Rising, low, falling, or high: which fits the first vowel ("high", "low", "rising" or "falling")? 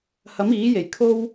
rising